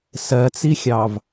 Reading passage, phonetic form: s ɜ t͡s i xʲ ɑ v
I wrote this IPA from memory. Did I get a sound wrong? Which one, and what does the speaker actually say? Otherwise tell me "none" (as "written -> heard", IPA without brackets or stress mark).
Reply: none